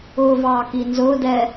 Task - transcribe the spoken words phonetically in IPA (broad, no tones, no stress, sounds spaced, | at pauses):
ʊː v ɑː k i n z ʊː d ɛ